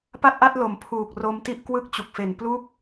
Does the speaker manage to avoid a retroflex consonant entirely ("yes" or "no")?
yes